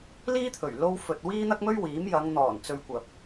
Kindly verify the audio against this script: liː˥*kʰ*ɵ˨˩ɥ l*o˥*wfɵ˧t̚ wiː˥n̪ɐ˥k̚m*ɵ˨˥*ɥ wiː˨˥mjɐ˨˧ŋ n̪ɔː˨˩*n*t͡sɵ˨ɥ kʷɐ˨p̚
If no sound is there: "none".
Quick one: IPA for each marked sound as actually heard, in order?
t̪ʰ, o˥, ɵ˥, n

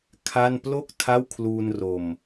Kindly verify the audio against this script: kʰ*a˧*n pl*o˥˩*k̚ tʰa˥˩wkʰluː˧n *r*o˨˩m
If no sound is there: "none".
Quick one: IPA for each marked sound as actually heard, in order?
a˥˩, o˥˩, r

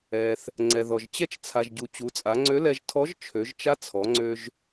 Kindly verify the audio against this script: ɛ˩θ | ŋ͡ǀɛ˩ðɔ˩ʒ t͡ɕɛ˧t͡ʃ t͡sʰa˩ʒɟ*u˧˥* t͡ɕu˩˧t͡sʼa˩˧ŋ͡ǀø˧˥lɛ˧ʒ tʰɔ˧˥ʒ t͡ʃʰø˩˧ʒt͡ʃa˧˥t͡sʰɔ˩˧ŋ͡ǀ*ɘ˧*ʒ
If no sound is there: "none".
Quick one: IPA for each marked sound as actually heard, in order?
u˩, ø˧

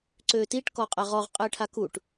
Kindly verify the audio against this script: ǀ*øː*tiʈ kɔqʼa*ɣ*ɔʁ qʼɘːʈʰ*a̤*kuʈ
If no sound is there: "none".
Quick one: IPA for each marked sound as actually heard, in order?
øː, ʁ, a

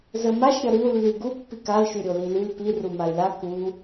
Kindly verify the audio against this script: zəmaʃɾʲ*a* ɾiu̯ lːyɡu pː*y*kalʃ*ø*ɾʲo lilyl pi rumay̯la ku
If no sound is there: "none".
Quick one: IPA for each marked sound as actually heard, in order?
ʌ, i, y

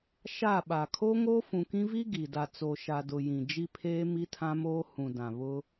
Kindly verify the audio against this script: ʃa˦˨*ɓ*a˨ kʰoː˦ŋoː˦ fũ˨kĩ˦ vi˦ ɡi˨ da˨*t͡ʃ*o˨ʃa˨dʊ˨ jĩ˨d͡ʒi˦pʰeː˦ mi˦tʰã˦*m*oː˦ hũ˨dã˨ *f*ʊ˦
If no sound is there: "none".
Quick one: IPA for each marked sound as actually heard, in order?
ɓ, t͡s, m, β

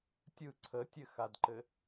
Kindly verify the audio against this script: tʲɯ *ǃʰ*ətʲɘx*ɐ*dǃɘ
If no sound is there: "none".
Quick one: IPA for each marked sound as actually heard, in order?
ǀʰ, a

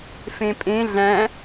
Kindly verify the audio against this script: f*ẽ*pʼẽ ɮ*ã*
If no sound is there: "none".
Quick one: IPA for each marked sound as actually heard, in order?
ẽ, æ̃

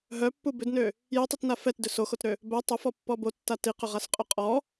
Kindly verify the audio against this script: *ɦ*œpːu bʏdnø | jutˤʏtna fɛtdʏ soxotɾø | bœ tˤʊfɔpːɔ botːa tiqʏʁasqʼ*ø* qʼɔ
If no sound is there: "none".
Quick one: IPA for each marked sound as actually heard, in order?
ɦ, ø

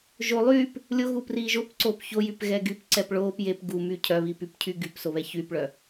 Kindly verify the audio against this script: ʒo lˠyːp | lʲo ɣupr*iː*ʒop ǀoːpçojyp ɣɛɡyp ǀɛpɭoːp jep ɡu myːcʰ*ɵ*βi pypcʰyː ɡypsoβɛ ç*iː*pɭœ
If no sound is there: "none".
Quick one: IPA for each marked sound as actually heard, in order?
iː, œ, yː

